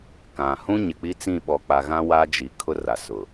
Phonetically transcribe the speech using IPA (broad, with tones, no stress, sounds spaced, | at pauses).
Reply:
k ã˨ h ũ˦ ɲ ɪ˨ k͡p i˦ t͡s ĩ˦˨ ɓ ɔ˨ k͡p a˨ ɣ ã˦ w a˦ d͡ʒ i˨ kʰ ʊ˦ r a˨ s ʊ˨